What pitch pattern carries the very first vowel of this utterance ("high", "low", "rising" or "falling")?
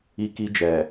high